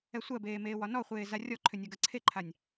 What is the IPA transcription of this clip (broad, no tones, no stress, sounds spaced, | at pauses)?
ɛ sʷ ɜ b eː m eː w ɒ n ɔ χʷ eː z a rʲ ɔ ǃʰ ʏ nʲ a ɡ ɜ ǀʰ e ǃʰ a nʲ